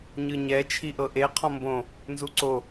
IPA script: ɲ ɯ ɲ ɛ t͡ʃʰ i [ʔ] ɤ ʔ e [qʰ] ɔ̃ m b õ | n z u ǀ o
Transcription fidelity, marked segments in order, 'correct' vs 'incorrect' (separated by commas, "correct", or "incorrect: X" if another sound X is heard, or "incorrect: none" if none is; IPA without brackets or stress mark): correct, correct